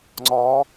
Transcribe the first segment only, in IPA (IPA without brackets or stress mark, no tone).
ŋ͡ǀ